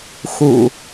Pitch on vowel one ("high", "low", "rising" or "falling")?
low